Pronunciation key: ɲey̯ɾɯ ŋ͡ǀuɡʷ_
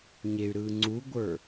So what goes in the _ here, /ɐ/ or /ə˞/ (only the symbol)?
ə˞